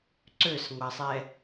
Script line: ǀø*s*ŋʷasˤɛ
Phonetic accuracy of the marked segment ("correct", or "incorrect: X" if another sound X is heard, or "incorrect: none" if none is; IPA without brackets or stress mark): correct